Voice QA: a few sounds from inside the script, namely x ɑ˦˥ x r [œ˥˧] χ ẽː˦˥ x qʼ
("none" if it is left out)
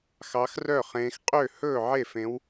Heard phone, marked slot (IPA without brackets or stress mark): œ˥˧